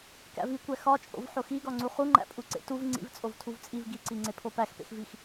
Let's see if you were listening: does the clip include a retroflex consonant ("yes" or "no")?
no